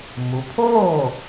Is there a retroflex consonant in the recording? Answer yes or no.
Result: no